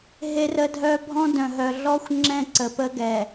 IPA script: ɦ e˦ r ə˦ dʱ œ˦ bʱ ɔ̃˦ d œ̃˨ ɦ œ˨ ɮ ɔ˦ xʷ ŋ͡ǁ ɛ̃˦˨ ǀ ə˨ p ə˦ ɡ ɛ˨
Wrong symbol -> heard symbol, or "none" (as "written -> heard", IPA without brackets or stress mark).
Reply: none